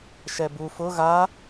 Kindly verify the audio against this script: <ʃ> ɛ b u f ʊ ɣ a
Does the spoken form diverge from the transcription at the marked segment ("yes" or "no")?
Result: no